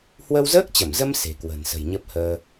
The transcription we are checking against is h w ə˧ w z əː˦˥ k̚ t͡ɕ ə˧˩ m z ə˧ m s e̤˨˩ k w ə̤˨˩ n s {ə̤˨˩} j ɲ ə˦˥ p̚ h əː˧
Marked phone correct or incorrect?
correct